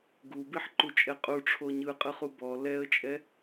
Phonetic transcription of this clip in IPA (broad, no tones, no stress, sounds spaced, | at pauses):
ɡ u b i ħ ǃ u t͡ʃʼ ɛ qʼ u ʈ͡ʂʰ o ɲ ɯ qʼ ɯ χ u b ɔ l ɛ ə̯ t͡ʃʼ ɛ